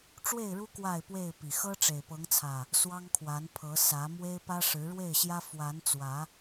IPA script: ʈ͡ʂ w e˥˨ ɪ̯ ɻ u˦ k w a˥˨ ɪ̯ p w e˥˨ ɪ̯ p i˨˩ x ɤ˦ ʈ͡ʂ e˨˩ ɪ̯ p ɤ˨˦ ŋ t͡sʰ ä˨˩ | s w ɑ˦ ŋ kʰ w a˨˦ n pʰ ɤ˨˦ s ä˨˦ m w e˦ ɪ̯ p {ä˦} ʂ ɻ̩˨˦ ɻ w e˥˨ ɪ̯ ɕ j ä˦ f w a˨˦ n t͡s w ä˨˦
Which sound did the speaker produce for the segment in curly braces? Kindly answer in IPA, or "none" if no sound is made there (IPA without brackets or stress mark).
ä˦